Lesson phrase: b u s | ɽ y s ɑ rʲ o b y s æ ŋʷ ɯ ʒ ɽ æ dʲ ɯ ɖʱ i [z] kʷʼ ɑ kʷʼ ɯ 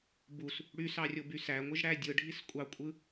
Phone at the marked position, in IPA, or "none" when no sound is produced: s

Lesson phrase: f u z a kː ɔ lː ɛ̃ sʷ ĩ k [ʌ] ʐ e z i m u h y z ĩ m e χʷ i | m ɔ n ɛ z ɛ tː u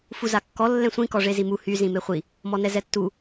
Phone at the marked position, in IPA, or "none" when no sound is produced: ɔ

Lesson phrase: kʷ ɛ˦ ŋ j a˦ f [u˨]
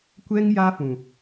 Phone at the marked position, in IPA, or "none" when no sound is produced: ũ˨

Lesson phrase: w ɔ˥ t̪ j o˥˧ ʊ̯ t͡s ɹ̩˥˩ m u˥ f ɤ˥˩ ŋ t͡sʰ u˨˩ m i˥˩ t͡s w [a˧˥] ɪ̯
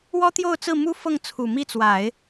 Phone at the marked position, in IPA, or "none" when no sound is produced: a˨˩˦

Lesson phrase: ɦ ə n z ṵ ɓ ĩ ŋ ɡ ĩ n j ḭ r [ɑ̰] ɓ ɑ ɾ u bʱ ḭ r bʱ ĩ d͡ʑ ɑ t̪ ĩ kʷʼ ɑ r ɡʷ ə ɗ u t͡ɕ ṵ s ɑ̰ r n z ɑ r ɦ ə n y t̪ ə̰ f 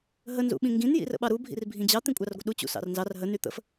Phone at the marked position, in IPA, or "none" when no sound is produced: ə̰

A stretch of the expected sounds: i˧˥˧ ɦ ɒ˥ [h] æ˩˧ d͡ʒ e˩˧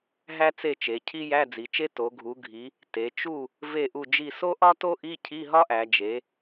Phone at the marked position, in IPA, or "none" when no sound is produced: ʔ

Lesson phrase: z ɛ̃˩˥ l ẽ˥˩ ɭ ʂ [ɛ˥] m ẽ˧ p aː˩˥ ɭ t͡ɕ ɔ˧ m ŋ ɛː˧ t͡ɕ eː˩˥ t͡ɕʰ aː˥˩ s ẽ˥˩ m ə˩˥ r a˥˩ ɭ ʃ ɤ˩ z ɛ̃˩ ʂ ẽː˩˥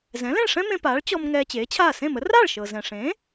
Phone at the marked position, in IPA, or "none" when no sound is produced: ɛ̃˥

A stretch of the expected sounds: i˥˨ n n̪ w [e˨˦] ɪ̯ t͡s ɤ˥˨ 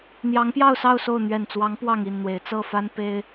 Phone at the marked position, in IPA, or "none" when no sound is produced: e˨˦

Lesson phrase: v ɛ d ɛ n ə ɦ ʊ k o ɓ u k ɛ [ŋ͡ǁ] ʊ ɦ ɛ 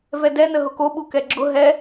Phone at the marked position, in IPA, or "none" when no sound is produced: ɡ͡ǁ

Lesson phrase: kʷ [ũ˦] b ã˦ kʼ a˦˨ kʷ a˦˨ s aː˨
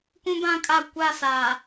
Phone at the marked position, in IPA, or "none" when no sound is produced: ũ˦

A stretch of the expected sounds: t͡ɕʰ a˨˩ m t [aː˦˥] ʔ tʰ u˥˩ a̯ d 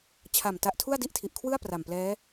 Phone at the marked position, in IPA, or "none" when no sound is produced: a˦˥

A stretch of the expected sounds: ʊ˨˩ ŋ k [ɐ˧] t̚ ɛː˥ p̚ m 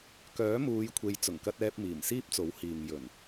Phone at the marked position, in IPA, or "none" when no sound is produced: ɐ˥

